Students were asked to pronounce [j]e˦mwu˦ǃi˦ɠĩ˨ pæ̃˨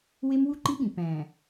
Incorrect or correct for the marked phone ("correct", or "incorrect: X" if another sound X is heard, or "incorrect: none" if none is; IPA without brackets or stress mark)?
incorrect: w